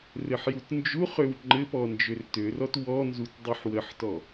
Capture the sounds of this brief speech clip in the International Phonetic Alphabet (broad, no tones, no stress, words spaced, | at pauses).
rɘħjutnd͡ʒuχøw ŋ͡ǃɘpɔ nd͡ʒørtørɔt wɔnzut dˤuħwəħtɔ